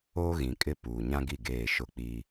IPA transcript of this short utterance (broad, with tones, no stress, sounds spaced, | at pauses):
oː˦ ɣ ĩ˨ kʼ ɪ˦ p uː˨ ɲ ã˦ ɡ i˦˨ ɡ eː˦˨ ʃ ʊ˦ k͡p i˦